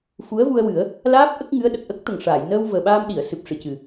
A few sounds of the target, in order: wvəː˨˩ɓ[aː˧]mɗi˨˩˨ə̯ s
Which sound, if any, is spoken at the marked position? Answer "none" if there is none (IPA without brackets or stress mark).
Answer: aː˧